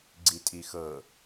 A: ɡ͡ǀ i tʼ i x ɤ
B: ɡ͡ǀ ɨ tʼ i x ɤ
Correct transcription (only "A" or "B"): A